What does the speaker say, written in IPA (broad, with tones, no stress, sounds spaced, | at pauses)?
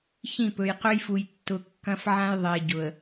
ç ĩ˦˨ p ɵ˨ j q ɵ˦ j f u˨ j tː ʊ˨ kː ɐ̃˦ f ʕ ã˦ j ðˤ e˨ ɟ ʊ˨ ə̯